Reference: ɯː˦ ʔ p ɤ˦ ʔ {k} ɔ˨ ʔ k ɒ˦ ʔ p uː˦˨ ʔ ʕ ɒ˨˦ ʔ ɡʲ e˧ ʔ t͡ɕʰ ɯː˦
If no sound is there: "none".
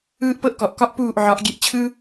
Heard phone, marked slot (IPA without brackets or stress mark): k